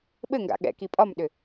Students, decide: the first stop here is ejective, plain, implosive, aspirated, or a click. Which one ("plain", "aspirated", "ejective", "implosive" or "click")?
implosive